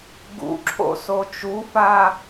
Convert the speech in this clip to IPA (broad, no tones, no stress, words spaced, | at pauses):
ɡṵǁʰo̰ sot͡ʃufa